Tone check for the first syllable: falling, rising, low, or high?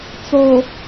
low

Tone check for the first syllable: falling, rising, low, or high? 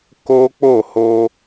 high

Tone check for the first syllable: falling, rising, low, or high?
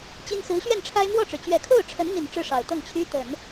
high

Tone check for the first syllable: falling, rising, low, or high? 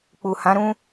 low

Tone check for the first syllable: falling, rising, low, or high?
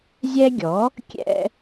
high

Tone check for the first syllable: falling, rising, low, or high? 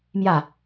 falling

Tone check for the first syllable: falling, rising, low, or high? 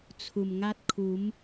low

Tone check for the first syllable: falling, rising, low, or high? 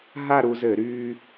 falling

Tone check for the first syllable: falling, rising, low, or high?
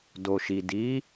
low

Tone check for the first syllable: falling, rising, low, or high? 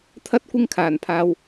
high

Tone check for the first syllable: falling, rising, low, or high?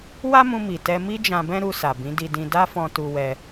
high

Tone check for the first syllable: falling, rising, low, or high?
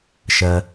low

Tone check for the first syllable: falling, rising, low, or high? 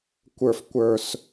low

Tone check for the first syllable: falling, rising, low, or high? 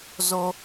high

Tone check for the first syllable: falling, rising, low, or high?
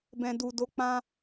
low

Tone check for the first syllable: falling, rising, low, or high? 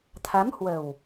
rising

